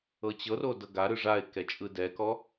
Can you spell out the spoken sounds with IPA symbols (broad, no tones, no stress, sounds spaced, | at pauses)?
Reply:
ɤ t͡ɕ ɤ r o d ɤ ɡ a ɾ ɯ ʐ a ɪ̯ k ɛ t͡ʃʼ ɯ d ɛ k ɔ